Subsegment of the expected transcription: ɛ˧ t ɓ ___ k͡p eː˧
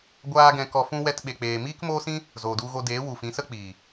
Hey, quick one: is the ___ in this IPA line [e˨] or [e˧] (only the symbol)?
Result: e˧